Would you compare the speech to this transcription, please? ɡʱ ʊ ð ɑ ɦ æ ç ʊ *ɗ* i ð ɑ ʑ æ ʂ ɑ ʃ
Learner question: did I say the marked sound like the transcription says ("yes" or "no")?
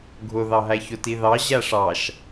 no